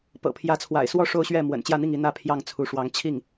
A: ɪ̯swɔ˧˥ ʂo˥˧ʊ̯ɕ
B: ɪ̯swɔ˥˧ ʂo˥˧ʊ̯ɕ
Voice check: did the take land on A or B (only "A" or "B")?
B